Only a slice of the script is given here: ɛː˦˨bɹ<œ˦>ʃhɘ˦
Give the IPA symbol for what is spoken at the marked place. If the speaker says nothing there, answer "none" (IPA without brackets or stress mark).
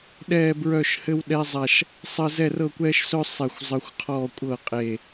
œ˦˨